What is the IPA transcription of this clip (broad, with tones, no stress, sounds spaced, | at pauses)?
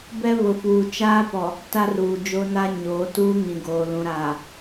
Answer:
b ɛ˦ β ʊ˨ f uː˨ t͡ʃ aː˦ p ɔ˨ | t a˦ r uː˨ d͡ʒ o˦ n a˦ ɲ oː˨˦ t uː˦ ŋ ĩ˨ ɡ oː˨ l ũ˨ ɾ aː˨